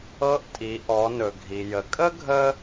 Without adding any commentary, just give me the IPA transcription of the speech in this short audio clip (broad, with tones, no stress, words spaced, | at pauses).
ɤ˧˥ʔtʼi˩˧ʔɔ˩˧ nɵ˩ɡʱi˩jə˩˧ kʼə˥ɡʱə˧